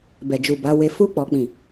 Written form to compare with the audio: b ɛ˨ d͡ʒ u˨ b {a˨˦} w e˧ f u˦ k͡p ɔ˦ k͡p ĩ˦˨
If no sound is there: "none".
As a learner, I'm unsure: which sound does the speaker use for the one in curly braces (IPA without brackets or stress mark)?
a˨˦